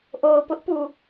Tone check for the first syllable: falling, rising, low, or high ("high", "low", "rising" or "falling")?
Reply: low